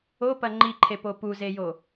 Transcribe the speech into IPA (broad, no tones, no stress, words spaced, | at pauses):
opɐ ŋ͡ǃiǃʰepo puzejo